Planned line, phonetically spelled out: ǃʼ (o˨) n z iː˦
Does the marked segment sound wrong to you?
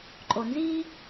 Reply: no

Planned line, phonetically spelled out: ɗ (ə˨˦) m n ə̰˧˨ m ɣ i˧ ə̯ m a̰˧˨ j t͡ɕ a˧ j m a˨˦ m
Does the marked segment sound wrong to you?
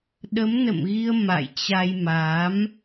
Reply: no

